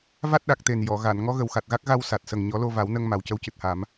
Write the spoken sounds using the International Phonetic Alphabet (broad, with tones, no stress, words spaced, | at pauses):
va˦˥t̚ɗa˨˩k̚t̪e˨˩n jɔ˨˩˨ ɣa˨˩˨n ŋɔ˧˥ɣə˨˩wxa˨˩t̚ɣa˦˥k̚ ɣa˧w sa˨˩t̚sə˨˩ŋ ɲɔ˨˩˦lo˧va˨˩˦wnə˧ŋ ma˨˩wcə˧˥wcɨ˨˩t̚ha˨˩˦m